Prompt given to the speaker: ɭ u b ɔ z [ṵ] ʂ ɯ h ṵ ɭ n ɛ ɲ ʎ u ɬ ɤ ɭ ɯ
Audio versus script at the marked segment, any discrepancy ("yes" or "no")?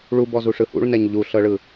yes